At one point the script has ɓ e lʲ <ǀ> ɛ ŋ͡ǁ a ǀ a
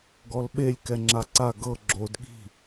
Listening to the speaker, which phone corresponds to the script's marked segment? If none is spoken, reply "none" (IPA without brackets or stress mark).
k